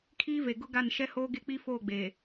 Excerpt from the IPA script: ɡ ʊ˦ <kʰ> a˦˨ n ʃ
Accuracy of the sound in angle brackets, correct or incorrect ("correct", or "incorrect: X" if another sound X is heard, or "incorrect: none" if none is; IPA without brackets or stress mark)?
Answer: incorrect: ɡ